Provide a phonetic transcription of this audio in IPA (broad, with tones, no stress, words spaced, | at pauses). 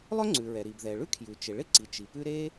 lˠœ˥ŋ͡ǀʉ˩ɹɛ˩ ɾi˩bðɛ˩ɭʉ˥ kʰjʉ˩t͡ʃɪ˩ ɭɪ˥ǀi˩ t͡ʃi˩pʉ˥ ɾe˥